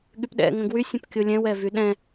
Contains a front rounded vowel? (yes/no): yes